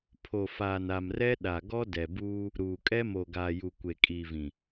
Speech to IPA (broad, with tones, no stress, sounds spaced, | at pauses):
pʰ o˨ f aː˨ n a˨ m r ɛ˦ ɗ a˨ ɡ ɔ˦ d ɛ˨ b uː˦ | ɾ uː˨ kʼ ɛ˦ m o˨ ɡ aː˨ j u˨ kʷ e˨ kʼ iː˨ v ĩ˨